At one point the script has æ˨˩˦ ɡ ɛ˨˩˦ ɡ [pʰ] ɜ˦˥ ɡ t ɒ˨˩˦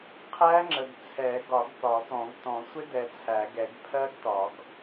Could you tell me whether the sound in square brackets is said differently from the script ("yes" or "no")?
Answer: no